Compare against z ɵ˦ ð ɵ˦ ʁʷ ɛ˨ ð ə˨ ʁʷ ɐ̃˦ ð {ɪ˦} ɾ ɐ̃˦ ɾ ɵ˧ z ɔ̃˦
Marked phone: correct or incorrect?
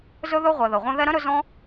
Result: incorrect